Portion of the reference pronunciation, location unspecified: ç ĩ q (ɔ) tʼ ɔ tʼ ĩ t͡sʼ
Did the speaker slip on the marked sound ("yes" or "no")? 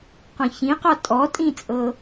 no